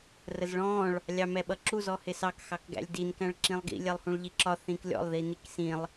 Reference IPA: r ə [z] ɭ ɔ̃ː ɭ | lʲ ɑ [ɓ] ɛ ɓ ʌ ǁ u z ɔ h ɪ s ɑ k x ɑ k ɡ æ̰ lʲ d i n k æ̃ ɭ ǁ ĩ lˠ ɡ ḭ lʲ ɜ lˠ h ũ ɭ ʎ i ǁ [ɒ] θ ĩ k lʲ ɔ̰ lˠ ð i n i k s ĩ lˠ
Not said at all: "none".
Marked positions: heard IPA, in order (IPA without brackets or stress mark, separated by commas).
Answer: z, m, ɒ